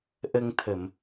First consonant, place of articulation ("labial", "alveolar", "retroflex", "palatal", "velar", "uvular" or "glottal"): glottal